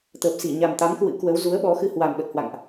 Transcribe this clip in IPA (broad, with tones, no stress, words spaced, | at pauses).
t̪əː˨˩p̚si˧˩ɲa˨˩mt̪a˨˦m kwɨ̰˧˥kwə˨˦w zu˨˦ə̯ɓɔ˨˦xɨ˧ hwa˨˩mɓə˨˩t̚hwa̰˧˨ŋʔ